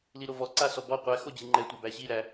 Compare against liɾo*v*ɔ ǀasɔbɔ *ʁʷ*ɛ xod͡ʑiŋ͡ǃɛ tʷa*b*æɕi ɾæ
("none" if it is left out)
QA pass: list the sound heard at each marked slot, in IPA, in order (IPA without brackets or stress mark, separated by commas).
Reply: v, qʷ, b